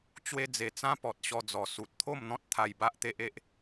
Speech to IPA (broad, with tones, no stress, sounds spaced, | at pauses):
t͡ɕ w e˧ d͡z e˨˩ t͡s ã˦ p ɔ˨ t̚ ɕ ɔ˧ d͡z ɔ˨˩ s u˨ t̚ t̪ʰ o˥˧ m n̪ ɔ̃˦ t̚ t̪ʰ a˧ j b a˦ ʔ t̪ e˦ ʔ e˦ ʔ